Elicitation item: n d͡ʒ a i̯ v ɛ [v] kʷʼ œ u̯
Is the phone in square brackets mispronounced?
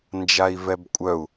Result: yes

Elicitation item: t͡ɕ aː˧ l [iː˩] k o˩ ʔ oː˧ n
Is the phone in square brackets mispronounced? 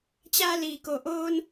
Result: no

